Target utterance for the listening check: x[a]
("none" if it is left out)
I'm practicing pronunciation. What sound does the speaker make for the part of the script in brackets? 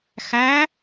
æ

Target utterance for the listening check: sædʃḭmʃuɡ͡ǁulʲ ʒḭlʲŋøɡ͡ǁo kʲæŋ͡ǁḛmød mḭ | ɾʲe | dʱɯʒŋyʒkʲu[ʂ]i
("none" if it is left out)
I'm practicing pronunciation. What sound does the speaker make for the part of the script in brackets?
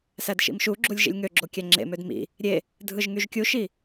ʃ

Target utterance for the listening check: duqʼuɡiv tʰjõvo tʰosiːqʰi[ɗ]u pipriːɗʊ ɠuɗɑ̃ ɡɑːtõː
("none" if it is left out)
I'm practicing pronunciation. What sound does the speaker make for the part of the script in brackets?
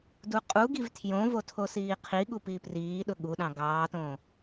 ɠ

